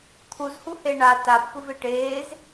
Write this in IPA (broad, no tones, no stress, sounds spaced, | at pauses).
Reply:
t̪ʰ u z h u h e ɳ a t a pː ɯ v e ʈ eː z